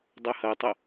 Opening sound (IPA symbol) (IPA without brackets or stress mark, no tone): dˤ